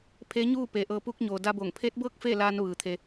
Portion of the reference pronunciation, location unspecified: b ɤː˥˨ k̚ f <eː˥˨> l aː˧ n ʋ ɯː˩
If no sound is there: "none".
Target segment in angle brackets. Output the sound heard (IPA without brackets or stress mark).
eː˥˨